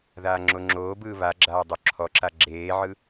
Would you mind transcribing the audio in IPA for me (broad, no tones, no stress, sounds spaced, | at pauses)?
ð aː ŋ͡ǁ o ŋ͡ǁ oː b ɯː β a ɡ͡ǁ aː dˤ o ǁʰ ɔ ǁ a ɡ͡ǁ eː ʕ ɯ